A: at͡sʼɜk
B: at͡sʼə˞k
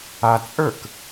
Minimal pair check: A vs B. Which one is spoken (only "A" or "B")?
B